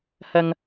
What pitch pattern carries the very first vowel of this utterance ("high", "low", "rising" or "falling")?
high